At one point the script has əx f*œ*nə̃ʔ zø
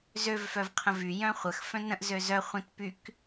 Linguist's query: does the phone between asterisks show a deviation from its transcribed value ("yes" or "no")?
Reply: yes